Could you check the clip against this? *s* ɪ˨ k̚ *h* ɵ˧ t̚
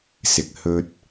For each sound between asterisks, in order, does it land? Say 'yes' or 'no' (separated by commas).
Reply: yes, yes